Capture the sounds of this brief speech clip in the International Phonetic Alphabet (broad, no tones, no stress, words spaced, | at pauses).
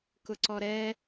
kʊǀɔɾɛ